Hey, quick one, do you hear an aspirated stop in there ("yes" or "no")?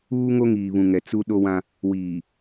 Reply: no